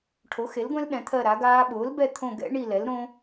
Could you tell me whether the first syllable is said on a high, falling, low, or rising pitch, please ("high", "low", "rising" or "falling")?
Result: rising